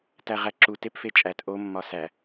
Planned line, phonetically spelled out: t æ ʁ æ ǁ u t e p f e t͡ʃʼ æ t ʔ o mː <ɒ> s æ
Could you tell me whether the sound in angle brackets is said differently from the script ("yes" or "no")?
no